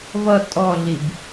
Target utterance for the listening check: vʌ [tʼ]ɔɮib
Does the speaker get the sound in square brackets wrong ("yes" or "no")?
no